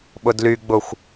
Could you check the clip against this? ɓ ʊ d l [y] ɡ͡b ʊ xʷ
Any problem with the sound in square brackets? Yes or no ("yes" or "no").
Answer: no